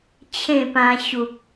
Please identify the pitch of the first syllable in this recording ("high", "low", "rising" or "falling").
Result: falling